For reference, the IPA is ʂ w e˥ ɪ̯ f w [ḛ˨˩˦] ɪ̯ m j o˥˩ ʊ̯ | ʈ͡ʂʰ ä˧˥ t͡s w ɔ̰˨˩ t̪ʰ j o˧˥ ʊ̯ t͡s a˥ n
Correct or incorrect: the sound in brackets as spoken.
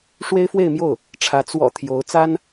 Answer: incorrect: e˥˧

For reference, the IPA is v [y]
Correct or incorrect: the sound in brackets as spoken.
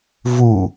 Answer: incorrect: u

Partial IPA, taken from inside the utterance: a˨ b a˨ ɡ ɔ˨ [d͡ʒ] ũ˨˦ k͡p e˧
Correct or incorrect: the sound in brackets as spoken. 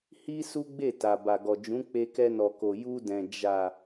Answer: correct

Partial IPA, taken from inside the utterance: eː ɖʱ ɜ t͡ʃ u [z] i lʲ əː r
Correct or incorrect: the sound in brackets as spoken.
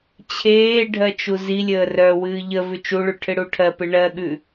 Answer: correct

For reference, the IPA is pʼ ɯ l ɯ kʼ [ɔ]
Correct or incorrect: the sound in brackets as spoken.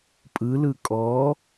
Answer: correct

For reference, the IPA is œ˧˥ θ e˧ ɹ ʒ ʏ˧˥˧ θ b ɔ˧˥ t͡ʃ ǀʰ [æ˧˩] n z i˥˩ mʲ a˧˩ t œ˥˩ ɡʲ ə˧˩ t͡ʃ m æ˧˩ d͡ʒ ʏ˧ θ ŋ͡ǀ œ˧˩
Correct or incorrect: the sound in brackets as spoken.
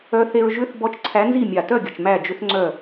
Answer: incorrect: æ˧˥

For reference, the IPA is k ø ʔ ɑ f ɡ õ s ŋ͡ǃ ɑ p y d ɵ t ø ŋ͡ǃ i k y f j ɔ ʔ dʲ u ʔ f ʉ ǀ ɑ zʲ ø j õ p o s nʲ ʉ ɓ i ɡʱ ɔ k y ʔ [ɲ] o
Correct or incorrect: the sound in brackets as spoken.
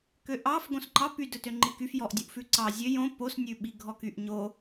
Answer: correct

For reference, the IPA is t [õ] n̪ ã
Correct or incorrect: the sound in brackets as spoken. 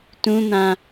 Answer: incorrect: ũ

